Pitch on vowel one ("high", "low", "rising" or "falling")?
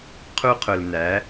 high